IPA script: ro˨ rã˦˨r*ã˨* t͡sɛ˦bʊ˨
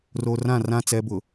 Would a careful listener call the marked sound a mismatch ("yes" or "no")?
yes